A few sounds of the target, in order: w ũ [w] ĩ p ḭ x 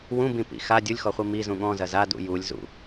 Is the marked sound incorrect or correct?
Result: incorrect